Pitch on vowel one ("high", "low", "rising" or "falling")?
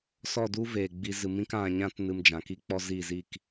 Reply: falling